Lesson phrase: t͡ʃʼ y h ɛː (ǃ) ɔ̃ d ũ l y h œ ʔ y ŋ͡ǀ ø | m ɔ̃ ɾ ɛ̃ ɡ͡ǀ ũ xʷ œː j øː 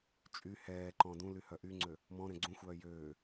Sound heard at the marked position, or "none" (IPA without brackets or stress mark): ǃ